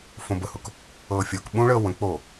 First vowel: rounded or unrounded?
rounded